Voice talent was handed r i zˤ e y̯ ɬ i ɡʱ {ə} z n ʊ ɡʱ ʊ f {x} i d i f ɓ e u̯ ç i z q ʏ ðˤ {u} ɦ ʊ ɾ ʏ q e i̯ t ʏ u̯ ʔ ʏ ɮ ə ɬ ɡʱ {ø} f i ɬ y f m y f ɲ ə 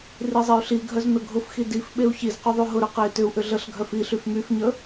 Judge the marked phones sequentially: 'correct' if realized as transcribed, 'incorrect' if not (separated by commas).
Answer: incorrect, correct, incorrect, incorrect